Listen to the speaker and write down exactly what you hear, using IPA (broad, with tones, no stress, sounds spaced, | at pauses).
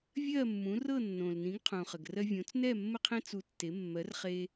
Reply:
vʲ ɜ˥˩ mː ũ˩˥ r ɤ˥˩ nː õ˩ l n ĩ˩˥ ɡ qʰ ũ˩ χ ə˩ ɡ r ɜ˧ vʲ õ˩˥ t͡s n ɛ˥˩ mː ə˥ qʰ ẽ˥ t͡s u˧ tː e˩˥ mː ɜ˩˥ r χ e˧